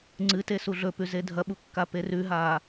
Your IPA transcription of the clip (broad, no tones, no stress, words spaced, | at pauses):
ŋ͡ǀɨte suɮɵpʉ zedʱɐɓu kːaperʉɦaː